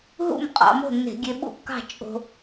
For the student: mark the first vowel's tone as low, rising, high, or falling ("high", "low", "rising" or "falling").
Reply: falling